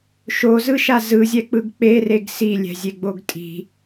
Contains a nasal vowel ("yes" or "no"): no